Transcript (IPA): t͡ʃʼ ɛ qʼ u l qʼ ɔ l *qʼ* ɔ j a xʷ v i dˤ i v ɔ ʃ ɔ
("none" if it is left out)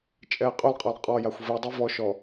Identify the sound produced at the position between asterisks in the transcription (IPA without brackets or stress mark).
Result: qʼ